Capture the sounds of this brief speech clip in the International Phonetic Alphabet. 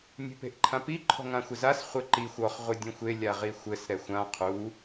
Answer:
nʲ e̤ p e̤ ʔ ǃʰ ã p i ǃʰ ɔ̤ ŋ ã xʷ ɘ z a s χʷ ɘ ǃ i xʷ ɔ χ ʁʷ ɨ dʲ ũ xʷ e lʲ a ʁ i xʷ ɘ s ɾ ɛ xʷ ã qʰ u

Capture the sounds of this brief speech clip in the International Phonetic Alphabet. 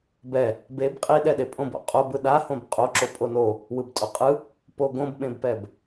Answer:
b ɛ | b e b qʼ i ɗ ɛ ɗ e pʼ õ b o̰ qʼ o b ɯ ɗ a h õ b qʼ o ǁ o pʼ o n o | w ɯ b tʼ o qʼ ɯ | p o ɡ õ b ɓ ẽ b p ɛ b

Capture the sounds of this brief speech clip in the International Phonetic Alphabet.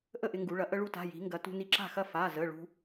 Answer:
ʔ ə˥˩ ʔ ɪ˧ ŋ ɡ u˩˧ ɭ ɐ˩˧ ʔ ə˧ ɭ u˧ t a̤˩˧˩ j i̤˩˧ ŋ ɡ ɐ˩˧ t ṳ˧ n i˧ ǁ a̤˥˩ x ɐ˥˩ f a˩˧˩ z ə˩˧˩ ɭ ṳ˧

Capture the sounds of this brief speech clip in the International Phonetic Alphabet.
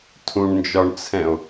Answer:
tʰ ũ ɳ n d͡ʒ ɒ ɳ t͡sʰ ɛ̃ o̯

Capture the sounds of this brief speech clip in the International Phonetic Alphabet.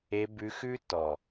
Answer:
e˧ b ʉ˧ x ʉ˦ t ɔ˨

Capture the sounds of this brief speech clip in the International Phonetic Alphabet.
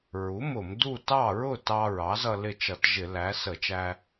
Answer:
ɹ u˩˥ m ʊ˧˩˧ m d u˥˨ t ɑ˥˨ ɹ ʊ˥˨ t ɑ˧ ɹ ɑ˩˥ z ʌ˧ l ɪ˥˨ t͡ʃ ʌ˧˩˧ t ʒ ɪ˧˩˧ l æ˩˥ s ə˧˩˧ t͡ʃ æ˧

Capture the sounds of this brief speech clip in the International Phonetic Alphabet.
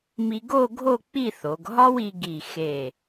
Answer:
m i˧ ɡ o˥˧ ɡʱ o˥˧ k͡p i˥˧ θ o˩˧ ɡ ɦ ɒ˥ w i˧ ɡ i˧˩ x e˧˩

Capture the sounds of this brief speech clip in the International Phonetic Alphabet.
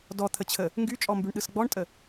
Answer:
d ɔ t̪ʰ ə t͡ɕʰ ə | ŋ ɡ y t͡ʃʼ ɔ m b y ɳ ɗ ɯ s ɡ͡b ɔ ɳ tʼ ə

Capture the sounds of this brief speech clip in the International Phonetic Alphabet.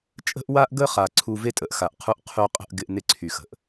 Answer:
t͡ʃʼ ə̤˦ ʔ w a˦ ʔ ɡ ə˦ χ a˨ ǀʰ u˦ v e˦ tʼ ə˨ ʔ x a˨ ʔ qʰ u˦ ʔ qʰ y˦ qʼ ə̤˦ ʔ ɡ ɪ˦ ʔ n ɪ˦ ǀʰ y˨ x ə̤˨ ʔ

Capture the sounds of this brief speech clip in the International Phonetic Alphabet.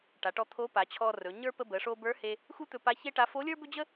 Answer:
ʈ a˩˧ ʈ ɔ˧ t̪ʰ o˧˥ p a˩˧ t͡ɕʰ ɔ˧ r ɵ˩˧ ɲ ə˞˥ p ə˧ b ə˩˧ ʂ o˧ b ə˞˧˥ h e˧ | x u˥ t̪ ɵ˧ p a˧˥ ç e˥ ʈ a˧˥ f o˧˥ lʲ ə˞˥ b ɵ˥ d͡ʑ ə˥

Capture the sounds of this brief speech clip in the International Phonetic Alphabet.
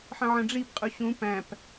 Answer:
ħ ə̃ ʕ ə̃ ɖ͡ʐ i p qʼ u ɕ ũ p æ̃ p

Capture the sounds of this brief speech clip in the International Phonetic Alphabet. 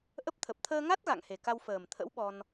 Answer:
ʔ ə˦˥ p̚ t̪ʰ ə˨˩ p̚ t̪ʰ əː˧ ŋ a˦˥ t̚ ɣ a̰˧˨ ŋ h e˨˩ k a˧ w f əː˨˩ m t̪ʰ ə̰˧˥ w ɓ ɔ˧ n

